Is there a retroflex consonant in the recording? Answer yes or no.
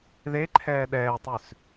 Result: no